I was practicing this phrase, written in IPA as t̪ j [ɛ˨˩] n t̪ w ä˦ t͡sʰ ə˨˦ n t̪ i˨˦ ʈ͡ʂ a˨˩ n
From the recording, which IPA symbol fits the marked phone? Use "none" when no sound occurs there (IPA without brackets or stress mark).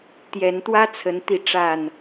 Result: ɛ˨˦